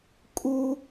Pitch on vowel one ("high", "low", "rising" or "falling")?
high